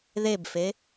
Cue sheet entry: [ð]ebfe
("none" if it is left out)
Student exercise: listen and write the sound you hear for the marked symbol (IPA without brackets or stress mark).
ð